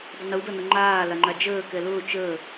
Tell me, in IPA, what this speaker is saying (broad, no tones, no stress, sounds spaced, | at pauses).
dˤ ə n u d ʌ n ʊ ŋ͡ǃ aː l a ŋ͡ǃ a d͡ʒ əː k ɛ l ʊː t͡ʃ əː